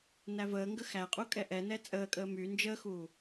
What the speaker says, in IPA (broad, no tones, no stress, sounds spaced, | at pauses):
n æ v əː ŋ ɡ ə x æ qʼ u kʼ ɛ ʔ ɛ n ɛ t͡sʼ əː kʼ əː m y n d͡ʒ əː x uː